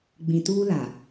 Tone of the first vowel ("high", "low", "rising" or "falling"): low